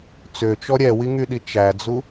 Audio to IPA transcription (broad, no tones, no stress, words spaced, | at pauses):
t͡søt͡ʃɔ ɾʲɛwiŋyɗi t͡ʃæd͡zu